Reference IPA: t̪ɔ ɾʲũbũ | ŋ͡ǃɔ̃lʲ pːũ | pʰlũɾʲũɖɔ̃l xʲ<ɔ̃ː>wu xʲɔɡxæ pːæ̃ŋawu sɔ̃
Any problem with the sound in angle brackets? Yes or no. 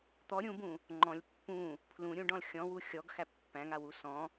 yes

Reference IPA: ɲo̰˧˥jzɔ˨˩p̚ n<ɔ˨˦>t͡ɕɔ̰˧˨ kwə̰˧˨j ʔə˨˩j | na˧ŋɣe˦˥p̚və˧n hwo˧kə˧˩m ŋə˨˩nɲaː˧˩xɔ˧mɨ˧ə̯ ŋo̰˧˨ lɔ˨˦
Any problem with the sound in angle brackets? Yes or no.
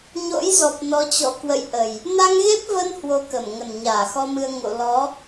no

